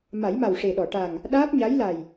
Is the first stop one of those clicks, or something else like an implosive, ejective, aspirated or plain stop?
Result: implosive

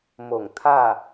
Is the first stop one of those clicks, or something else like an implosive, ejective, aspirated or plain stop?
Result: aspirated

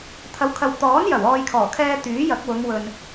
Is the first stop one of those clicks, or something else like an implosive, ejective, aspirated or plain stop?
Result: aspirated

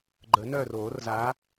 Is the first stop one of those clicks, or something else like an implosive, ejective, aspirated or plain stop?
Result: click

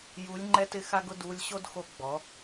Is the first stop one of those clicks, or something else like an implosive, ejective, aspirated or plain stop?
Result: click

